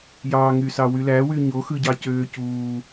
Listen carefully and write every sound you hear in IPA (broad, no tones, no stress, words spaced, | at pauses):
jɑ ŋysɑwylæ wyɲo xɯɟɑcøːcuː